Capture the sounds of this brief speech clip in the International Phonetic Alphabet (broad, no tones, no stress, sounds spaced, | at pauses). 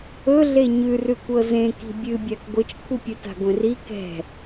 ɵ ɮ e ɲ ʉ r ʉ kʷ ɤ z ẽ k i̤ bʲ ɨ bʲ a k ɡʷ ɨ t͡ʃ kʷʰ ɨ pʲ ɵ t a̤ ɡʷ ẽ r i k ɛ̤